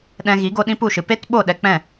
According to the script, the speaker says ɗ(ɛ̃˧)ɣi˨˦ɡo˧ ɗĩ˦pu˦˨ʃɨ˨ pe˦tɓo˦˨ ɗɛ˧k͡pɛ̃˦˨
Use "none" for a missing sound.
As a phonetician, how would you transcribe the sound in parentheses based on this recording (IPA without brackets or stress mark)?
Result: ɛ̃˧